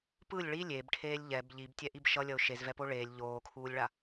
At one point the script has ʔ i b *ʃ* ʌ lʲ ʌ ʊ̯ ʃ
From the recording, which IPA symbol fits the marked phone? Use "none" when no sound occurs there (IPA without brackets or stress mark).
ʃ